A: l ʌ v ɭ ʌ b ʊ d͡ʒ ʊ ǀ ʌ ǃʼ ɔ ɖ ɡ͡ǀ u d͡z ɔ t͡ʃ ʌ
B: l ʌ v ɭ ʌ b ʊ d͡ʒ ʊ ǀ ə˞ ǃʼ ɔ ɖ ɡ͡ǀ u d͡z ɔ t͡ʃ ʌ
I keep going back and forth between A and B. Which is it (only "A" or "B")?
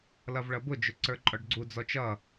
B